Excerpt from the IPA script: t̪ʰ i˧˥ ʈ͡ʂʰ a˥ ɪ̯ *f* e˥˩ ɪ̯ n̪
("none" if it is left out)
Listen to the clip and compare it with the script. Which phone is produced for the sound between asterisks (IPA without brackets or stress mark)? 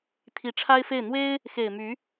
f